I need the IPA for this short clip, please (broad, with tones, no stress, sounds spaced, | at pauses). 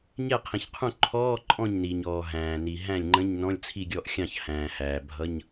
ɲ ɛ˥˩ qʰ ĩ˩ ç qʰ ũ˥˩ ǃʰ ɔː˧˥˧ ǃʼ ɔ̃˥˩ ɲ n i˩ ɲ ɔː˩ ɦ æ̃ː˩ n i˩ ɦ æ̃˥˩ lʲ ŋ͡ǃ ə̃˧˥˧ ɲ n ɔ̃˧˥˧ lʲ t͡sʰ i˥˩ ɡʲ ɔ˥˩ ʔ xʲ ɑ̃˥˩ ç h æ̃ː˩ h æː˩ bʱ ʌ˧˥˧ ɲ